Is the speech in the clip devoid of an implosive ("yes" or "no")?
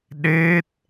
no